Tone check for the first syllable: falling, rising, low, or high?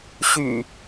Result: low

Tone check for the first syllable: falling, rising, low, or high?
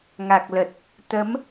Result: low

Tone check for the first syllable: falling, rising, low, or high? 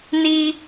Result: high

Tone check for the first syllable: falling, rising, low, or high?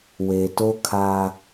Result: low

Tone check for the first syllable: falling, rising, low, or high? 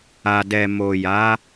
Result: low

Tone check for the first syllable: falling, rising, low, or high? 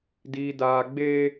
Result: high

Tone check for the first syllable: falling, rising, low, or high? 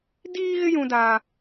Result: high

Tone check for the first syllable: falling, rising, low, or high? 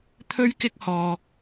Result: high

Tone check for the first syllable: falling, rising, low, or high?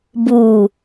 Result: low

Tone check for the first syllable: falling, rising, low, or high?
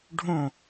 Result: falling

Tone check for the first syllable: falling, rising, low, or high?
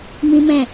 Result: high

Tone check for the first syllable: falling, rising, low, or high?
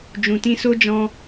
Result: low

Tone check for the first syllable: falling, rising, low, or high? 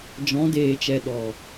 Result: rising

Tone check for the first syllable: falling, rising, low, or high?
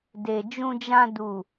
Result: low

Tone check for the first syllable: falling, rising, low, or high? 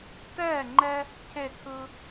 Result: falling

